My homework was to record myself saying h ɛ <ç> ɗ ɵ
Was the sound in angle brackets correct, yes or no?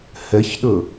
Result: yes